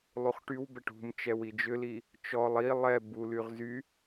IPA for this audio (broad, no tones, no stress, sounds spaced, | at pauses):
lˠ u χ ʈ y w b ɛ ʈ ṳ m t͡ʃ ɛ w i d͡ʒ ʏ l i | t͡ʃ ɔ lˠ i lˠ ɛ b u l y ʁ z y